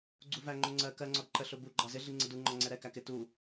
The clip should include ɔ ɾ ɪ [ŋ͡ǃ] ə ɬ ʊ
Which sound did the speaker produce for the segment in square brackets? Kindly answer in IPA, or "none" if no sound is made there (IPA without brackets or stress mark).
ǃ